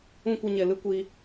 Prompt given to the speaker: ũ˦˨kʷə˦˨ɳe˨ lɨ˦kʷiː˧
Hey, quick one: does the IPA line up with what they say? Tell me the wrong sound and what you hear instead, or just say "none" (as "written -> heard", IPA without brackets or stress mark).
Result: ɳ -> ɲ